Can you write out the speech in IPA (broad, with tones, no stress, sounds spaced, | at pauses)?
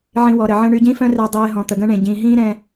ʕ ĩ˧ w ɔ˨ ɾ ə˨ ʕ ə̃˦ ɳ y˧ ɟ ĩ˦ f œ̃˦ r ɛ˧ dˤ eː˧ ɦ ɔ̃˨ t̪ ə˨ ɡ ə̃˦ ɳ ẽ˨ ɟ ĩː˨ ɦ ĩː˦ ɾ ɛ̃˦